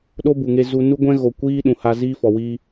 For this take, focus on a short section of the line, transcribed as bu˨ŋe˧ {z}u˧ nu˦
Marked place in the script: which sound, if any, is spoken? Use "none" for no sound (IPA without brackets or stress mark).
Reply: z